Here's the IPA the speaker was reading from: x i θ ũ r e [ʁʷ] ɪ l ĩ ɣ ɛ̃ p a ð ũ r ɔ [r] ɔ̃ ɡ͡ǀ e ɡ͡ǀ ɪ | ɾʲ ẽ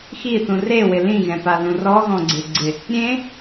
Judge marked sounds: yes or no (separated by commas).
no, no